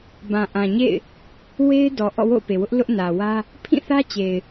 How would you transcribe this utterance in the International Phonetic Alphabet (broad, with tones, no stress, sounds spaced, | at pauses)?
b ã˨ ʔ ã˨ ɲ ḛ˦˨ ɪ̯ | w e˦ ɪ̯ d ɔ˨ ʔ ɔ̰˦˨ w o̰˦˨ ʊ̯ p e˨ w ʊ˦ ʔ l ʊ˦ ʔ n ä˨ w ä˦ | pʰ ĩ˦˨ θ ä˦ t͡ɕ e˨ ɪ̯